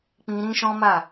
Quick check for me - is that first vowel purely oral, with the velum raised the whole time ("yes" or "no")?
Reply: no